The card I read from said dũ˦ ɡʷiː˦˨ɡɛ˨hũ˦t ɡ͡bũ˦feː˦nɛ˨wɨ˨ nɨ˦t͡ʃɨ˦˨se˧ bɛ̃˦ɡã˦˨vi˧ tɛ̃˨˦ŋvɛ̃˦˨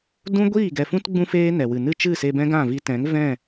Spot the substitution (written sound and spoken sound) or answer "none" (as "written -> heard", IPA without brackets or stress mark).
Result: h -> f